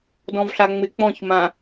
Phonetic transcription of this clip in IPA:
d ɔ̃ v ɬ a ŋ͡m ɪ k͡p ɔ̃ ç m ã

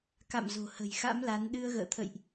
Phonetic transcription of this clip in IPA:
k a̰˧˨ m z o̤˨˩ h ə̤˨˩ j x a̰˧˥ m l a˨˦ n ɗ ɨ˧ ə̯ ɣ ə̰ː˧˨ t̪ʰ ə̰˧˨ j ʔ

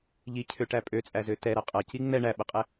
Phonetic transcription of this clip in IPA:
ʎ i cʰ ø ʈ æ pʼ ø t͡sʼ æ z ø t ɛ ɾ ɐ qʼ ɐ c i ŋ͡m ɛ ɳ æ ɓ ə qʼ ɛ

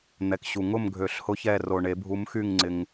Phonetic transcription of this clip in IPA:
n̪ ɛ˨ k ɕ u˨ ŋ ʊ˥˨ m ɡʱ ø˨˩˦ ɬ h ʊ˧˥ ç ɛ˥˨ r o˨ ɳ e˨˩˦ bʱ u˧˥ m x y˥˨ ŋ ŋ͡ǀ ɪ˨ ŋ

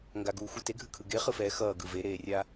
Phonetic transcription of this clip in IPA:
ŋ ɡ a ɡ uː xʷ ɯ t e ɡʱ ɯ kʰ ɯ ɡ e χ ɯ f ɛː x ʌː ɡ ɯ v e ɾ eː rʲ a

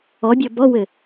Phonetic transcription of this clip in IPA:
ɔ bʲ ɤ b ɔ w ɘ

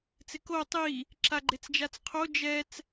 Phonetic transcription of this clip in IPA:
t͡s ɪ k o tˤ i | ǁ a ɡ͡ǃ e t͡s d͡ʒ a t͡s qʰ o d͡ʒ ɛ t͡s

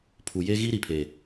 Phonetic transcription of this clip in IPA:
pʰ u˨ j e˦ ɣ i˦ ɾ i˨ pʰ e˨

